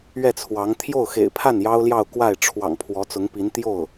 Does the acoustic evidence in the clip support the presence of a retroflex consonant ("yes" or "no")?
yes